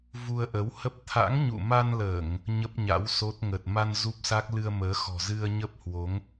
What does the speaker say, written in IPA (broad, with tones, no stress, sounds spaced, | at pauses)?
v u˧ ə̯ ʔ ə˨˦ w h ə˦˥ p̚ t̪ʰ a̰˧˥ ŋ ɲ ṵ˧˨ m a˧ n l əː˧˩˨ ŋ | ɲ ə˦˥ p̚ ɲ a̰˧˥ w s o˦˥ t̚ ŋ ə˨˩ t̚ m a˧ n z u˦˥ p̚ s a˦˥ k̚ l ɨ˧ ə̯ m əː˨˦ x ɔ̤˨˩ z ɨ˧ ə̯ ɲ ə˦˥ p̚ h w o˨˦ ŋ